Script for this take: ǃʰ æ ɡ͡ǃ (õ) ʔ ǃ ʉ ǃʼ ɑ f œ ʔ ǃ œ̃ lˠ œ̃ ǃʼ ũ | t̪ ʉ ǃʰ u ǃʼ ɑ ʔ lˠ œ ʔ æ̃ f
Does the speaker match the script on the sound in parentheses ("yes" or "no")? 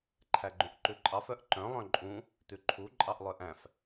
no